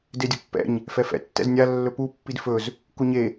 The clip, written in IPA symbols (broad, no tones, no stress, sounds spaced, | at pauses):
d e dʲ o pː ɛ̰ ɲ | f ɛ f ɛ̰ tː ɛ̰ z nʲ a lː ɵ p u pː i d f ɵ z | k u ɲ e